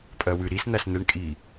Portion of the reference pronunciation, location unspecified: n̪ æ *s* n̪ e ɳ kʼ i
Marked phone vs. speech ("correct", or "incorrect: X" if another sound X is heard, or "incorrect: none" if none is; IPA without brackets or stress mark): correct